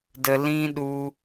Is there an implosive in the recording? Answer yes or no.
yes